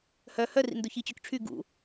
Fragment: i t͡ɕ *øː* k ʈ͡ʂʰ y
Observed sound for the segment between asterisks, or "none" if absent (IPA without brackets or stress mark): ø